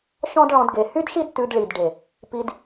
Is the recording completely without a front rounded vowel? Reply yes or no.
no